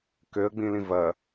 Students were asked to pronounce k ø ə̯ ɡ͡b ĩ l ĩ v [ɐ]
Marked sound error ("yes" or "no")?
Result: no